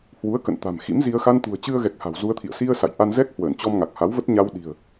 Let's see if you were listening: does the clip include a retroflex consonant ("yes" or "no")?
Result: no